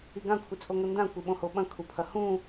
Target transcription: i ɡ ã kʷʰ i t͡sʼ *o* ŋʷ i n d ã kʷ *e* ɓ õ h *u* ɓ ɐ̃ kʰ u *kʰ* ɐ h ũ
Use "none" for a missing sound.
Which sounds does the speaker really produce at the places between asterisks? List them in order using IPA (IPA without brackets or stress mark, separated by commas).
o, ɨ, o, pʰ